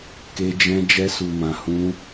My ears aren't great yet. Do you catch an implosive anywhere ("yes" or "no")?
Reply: no